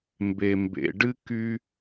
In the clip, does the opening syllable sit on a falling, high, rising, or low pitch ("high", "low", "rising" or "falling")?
low